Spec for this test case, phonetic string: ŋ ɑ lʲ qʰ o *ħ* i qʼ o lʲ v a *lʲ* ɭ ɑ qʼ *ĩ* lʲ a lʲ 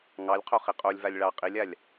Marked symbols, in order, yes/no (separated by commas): no, yes, no